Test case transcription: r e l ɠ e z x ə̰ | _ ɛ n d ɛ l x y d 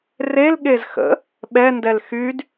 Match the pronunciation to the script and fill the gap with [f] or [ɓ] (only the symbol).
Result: ɓ